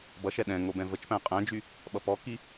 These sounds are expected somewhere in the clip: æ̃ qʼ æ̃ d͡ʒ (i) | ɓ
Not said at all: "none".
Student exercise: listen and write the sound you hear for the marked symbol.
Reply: y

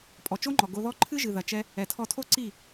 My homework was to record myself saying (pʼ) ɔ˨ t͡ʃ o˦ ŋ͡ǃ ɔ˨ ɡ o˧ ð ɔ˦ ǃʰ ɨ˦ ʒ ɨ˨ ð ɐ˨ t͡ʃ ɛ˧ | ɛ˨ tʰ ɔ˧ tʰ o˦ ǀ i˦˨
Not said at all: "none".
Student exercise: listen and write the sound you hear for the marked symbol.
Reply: pʼ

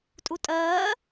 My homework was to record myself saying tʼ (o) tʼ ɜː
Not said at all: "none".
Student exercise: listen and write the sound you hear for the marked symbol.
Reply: u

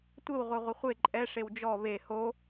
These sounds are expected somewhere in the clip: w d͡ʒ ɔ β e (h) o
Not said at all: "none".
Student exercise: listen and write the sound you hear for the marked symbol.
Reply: h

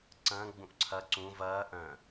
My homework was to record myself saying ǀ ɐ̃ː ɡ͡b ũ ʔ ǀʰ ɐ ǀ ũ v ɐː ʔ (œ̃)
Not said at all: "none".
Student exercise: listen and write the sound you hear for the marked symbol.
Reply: œ̃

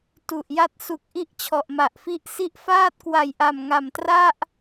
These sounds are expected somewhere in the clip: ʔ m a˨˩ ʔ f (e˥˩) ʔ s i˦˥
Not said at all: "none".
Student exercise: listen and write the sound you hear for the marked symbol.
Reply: i˥˩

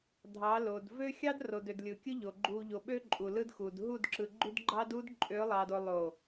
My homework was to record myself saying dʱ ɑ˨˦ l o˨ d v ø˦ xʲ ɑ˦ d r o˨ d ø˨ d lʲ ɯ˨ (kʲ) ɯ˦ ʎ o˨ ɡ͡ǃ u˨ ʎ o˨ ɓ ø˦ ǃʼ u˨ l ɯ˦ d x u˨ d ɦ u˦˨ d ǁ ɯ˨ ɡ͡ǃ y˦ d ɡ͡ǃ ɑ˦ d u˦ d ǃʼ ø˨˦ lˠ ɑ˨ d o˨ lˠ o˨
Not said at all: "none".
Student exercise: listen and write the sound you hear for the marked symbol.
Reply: kʲ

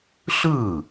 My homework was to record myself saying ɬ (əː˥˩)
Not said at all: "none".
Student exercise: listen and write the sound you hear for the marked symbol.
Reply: ɯː˥˩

